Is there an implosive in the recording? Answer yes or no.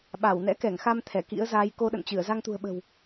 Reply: yes